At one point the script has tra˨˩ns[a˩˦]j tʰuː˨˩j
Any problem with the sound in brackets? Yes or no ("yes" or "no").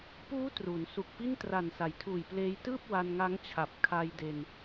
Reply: no